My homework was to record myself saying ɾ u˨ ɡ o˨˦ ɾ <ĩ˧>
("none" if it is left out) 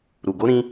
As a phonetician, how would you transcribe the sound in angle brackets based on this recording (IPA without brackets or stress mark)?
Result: ĩ˧